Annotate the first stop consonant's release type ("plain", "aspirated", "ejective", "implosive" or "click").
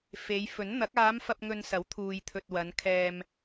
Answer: plain